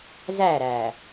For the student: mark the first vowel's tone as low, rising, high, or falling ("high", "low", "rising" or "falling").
falling